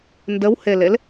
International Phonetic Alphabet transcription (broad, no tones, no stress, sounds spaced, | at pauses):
n d ə w h e l e l